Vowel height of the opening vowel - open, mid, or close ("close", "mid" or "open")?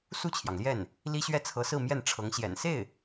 close